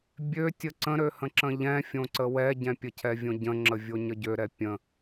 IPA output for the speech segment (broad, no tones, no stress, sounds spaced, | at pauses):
bʲ ø tʲ ə ǀ ə̃ ɾ ø h ə̃ ǁ ə̃ ʎ ɛ̃ fʲ õ ǀ ə w ɛ ɟ ɛ̃ pʲ ə cʰ ɛ vʲ õ ɟ ə̃ ŋ͡ǁ ə vʲ o ɲ ə ɟ ø ɾ ɛ pʲ ə̃